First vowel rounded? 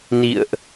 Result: no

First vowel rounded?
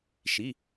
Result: no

